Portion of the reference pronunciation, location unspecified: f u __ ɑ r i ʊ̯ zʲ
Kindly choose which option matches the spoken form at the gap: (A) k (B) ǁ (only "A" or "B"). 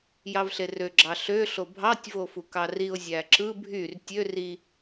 A